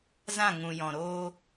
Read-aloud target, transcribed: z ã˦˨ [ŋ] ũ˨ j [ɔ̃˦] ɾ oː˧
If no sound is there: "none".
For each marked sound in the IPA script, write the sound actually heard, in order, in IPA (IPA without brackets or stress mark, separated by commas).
ŋ, ɔ̃˨